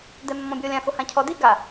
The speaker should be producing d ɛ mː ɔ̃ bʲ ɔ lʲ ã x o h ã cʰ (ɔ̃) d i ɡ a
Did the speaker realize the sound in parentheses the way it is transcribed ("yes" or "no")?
no